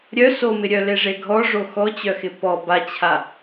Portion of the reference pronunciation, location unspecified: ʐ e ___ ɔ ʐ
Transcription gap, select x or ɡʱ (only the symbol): ɡʱ